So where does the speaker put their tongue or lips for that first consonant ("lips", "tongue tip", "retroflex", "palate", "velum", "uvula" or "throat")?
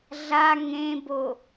tongue tip